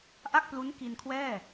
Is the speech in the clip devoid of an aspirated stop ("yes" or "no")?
no